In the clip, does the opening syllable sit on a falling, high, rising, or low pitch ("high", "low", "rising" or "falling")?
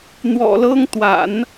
low